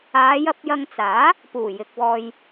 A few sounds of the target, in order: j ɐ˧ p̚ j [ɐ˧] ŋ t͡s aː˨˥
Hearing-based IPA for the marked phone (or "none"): ɐ˧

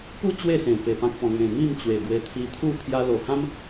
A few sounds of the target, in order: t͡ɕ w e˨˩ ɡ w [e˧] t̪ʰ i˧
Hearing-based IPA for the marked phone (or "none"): e˧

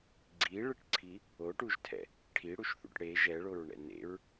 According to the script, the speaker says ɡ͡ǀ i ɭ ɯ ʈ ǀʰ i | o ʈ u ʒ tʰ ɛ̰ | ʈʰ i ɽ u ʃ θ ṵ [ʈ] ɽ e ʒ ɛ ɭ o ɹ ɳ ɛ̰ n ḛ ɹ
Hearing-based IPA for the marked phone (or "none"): ʈ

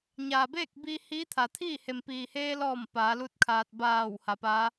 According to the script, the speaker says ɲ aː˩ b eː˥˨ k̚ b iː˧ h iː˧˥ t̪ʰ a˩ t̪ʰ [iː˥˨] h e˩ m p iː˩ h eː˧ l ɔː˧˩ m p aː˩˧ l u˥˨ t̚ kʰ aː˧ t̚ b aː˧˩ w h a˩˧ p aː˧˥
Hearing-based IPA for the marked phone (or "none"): iː˥˨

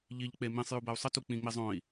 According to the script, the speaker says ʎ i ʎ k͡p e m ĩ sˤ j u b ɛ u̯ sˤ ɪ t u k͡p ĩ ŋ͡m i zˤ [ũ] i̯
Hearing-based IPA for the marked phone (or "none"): õ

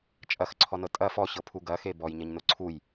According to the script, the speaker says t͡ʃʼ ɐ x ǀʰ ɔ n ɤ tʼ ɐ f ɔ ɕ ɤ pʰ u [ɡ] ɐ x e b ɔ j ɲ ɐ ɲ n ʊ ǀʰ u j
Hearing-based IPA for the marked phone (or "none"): ɡ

